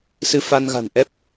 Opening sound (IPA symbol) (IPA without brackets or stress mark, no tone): s